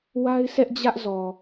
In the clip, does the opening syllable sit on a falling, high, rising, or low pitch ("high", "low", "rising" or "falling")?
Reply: high